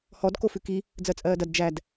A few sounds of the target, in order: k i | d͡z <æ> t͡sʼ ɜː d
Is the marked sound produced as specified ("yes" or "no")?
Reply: no